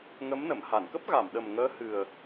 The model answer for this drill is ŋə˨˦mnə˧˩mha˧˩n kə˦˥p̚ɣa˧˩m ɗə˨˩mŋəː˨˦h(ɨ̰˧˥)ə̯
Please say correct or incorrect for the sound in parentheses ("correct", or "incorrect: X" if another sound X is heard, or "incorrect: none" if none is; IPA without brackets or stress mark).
incorrect: ɨ˨˩